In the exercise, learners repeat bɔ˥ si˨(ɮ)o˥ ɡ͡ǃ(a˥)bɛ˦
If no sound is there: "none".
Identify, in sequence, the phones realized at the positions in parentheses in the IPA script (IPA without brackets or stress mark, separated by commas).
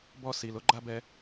l, a˥